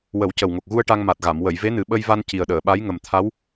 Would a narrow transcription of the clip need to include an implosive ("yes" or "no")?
yes